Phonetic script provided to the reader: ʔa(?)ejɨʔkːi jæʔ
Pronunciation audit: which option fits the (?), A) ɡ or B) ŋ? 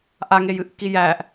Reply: B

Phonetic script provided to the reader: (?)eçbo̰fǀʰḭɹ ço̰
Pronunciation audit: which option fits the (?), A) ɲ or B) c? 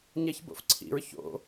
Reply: A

